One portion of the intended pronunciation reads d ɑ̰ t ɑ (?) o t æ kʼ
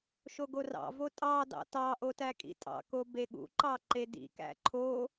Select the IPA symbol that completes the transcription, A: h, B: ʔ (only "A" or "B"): B